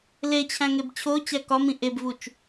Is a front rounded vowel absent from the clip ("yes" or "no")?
yes